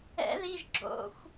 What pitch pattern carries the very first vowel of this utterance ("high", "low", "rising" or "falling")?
rising